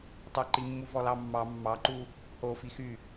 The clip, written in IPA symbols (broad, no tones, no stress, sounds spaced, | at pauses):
tˤ ɵ ǃ i mː u v ɔ l ɑ mː ɑ mː ɑ ǃ u | h o f i x y